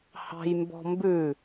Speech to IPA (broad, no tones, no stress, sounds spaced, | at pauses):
h ɑ̤ j m b ɔ̤ m b ʉ